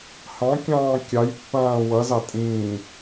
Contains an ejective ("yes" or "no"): yes